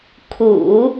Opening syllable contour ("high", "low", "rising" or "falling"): low